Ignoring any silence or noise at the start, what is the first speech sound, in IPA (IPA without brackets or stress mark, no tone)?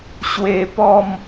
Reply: ɕ